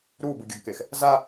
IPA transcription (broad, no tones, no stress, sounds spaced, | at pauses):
ɾ u b ɯ ɡʲ ʌ ɡ k e x | z a